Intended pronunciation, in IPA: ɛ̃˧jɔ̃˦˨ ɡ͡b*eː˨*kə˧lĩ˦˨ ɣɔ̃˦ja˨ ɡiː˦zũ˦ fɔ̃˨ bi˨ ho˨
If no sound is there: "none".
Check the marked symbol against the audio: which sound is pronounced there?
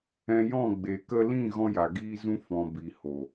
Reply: e˨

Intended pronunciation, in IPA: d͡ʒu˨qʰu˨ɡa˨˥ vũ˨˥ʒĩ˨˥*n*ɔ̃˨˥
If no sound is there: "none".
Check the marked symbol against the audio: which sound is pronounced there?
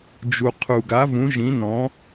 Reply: n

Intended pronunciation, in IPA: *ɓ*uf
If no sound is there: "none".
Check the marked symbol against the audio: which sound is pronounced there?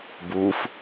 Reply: b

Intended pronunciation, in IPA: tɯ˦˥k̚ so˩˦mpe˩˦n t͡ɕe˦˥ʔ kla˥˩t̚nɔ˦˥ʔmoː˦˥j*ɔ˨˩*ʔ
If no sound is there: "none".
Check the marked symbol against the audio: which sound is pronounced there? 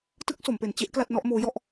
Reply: ɔ˥˩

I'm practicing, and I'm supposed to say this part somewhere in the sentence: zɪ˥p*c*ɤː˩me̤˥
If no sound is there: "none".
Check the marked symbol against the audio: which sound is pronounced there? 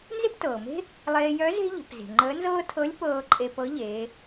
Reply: t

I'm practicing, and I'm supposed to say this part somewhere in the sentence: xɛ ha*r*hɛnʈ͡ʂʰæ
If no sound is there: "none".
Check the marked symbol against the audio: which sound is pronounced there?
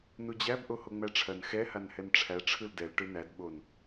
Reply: n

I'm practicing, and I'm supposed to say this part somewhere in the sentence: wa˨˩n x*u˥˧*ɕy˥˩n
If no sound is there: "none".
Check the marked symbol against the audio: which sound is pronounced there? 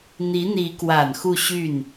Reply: u˥˧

